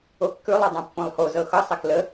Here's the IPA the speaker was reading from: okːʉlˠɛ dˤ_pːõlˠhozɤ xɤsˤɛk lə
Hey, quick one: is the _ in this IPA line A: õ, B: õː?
A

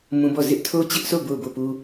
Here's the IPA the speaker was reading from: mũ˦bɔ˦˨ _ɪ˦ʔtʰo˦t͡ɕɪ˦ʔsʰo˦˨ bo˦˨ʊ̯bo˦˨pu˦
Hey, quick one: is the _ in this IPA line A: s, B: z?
B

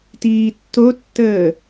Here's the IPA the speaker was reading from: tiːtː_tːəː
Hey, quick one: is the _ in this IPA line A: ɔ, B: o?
B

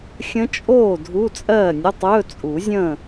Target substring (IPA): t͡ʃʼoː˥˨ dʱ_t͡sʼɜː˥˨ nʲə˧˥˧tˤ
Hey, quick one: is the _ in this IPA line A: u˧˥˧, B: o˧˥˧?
A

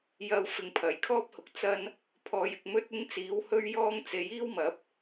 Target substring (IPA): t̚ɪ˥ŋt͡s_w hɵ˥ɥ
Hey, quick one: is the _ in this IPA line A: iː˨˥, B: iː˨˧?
A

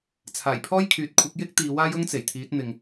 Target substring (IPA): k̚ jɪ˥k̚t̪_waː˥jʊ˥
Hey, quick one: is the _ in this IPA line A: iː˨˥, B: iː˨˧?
B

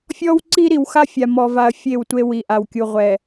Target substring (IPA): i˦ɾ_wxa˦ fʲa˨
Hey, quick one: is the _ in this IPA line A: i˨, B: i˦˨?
A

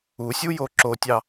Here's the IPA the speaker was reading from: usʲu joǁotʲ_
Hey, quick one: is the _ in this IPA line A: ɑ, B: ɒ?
A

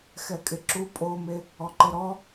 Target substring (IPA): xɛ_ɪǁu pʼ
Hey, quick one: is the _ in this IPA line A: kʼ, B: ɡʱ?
A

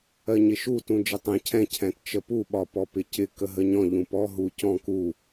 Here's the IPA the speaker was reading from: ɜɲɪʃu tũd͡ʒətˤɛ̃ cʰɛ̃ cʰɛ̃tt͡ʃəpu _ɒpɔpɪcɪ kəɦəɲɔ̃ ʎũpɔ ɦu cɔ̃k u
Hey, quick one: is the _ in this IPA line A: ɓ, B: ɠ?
A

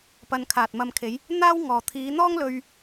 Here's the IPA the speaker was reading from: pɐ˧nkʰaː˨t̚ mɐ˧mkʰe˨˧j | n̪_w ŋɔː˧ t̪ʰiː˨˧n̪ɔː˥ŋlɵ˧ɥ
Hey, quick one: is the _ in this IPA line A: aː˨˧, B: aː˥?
B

